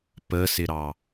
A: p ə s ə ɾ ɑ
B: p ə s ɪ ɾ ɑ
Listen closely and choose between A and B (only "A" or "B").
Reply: B